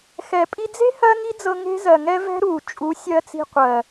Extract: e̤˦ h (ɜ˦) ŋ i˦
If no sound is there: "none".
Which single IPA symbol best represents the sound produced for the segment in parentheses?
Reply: ɜ˦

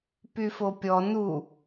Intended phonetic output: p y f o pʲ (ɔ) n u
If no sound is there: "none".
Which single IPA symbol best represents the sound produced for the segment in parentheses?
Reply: ɔ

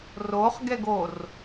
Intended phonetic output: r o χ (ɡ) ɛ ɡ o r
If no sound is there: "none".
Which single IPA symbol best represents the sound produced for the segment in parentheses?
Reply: ɡ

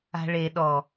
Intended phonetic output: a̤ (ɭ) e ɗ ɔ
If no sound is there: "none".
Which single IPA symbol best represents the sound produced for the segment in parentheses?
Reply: ɭ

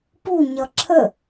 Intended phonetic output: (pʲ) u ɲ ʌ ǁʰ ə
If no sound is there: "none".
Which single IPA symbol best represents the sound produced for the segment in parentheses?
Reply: p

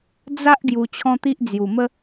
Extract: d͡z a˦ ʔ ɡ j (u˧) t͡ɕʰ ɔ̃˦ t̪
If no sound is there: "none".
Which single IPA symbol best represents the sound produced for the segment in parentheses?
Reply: u˧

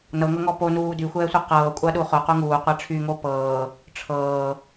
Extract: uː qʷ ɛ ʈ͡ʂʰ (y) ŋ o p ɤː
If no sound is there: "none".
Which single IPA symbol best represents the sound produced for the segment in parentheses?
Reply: y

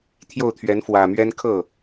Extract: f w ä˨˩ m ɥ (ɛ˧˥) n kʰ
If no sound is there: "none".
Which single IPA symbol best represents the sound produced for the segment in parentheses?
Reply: ɛ˥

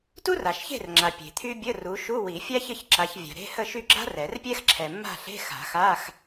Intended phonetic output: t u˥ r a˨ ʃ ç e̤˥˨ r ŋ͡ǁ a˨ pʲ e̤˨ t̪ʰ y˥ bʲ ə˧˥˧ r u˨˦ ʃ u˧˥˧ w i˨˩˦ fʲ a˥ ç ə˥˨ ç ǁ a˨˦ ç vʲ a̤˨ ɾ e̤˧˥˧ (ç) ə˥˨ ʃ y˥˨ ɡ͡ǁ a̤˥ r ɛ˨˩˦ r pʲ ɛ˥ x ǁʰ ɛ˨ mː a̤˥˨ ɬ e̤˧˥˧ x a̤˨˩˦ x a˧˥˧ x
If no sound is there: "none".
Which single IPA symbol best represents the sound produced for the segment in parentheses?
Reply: h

